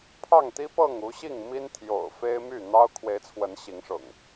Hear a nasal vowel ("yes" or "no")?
no